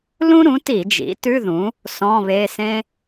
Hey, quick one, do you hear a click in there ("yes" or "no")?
no